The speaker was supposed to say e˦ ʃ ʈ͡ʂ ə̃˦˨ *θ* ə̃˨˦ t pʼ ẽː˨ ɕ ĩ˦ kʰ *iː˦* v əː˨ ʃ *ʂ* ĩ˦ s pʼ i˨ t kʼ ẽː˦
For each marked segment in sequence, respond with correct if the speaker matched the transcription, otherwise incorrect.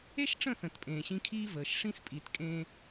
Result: correct, correct, correct

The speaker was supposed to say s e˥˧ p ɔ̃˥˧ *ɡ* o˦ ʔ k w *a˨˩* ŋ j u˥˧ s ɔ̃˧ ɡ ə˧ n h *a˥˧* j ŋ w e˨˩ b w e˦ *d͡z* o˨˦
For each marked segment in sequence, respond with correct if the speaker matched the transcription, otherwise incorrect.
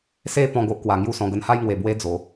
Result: correct, correct, correct, correct

